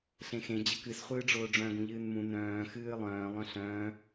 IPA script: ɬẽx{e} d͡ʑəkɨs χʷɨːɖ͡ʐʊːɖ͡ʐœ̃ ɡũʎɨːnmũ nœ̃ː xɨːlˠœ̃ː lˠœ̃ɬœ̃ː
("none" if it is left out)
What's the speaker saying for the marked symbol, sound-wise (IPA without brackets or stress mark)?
ẽ